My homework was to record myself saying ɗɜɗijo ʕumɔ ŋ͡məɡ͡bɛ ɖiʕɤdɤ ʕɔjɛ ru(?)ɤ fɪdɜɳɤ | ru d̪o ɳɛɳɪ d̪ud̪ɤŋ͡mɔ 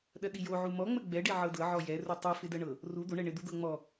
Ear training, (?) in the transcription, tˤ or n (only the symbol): tˤ